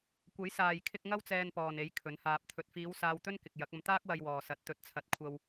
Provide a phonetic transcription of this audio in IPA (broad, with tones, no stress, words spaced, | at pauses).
kʷɐ˨˥jsaː˨jkʰɪ˧k̚ ŋɐ˥wt͡sɛː˧npɔː˨n e˨˥j kʰɵ˨˥nhaː˧p̚ t̪ʰɵ˨t̚fiː˨˧w saː˧wt̪ɵ˥n kɪ˨k̚ jɐ˨˥k̚ɐ˧m t̪aː˥k̚wɐ˧jwɔː˨ sɐ˨˥t̚ t̪ɵ˨t̚t͡sʰɐ˨˥t̚ kʷʰɐ˧w